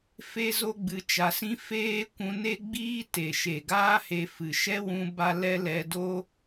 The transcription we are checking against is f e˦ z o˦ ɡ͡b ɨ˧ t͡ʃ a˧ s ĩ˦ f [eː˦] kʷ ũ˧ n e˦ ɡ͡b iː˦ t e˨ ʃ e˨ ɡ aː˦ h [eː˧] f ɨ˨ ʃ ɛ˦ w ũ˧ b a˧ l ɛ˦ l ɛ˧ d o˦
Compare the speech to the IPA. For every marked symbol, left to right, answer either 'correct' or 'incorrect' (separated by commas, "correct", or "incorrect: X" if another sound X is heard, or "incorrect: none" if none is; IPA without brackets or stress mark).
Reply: correct, incorrect: e˧